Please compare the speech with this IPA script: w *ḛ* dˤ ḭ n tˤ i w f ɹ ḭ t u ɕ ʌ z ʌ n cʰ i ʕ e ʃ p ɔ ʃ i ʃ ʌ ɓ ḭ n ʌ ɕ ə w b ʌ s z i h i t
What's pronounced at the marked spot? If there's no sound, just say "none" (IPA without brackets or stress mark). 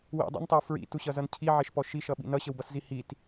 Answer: ḭ